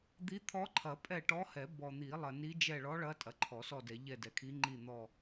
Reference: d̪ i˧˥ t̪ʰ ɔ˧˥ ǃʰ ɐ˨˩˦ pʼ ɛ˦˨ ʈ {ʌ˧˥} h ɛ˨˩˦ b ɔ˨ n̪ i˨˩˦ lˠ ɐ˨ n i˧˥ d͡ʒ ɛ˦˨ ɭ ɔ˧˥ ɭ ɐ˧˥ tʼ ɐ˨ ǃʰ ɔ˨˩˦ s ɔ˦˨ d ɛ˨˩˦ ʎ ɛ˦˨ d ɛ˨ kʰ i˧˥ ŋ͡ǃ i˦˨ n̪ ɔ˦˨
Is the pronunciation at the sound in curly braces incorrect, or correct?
incorrect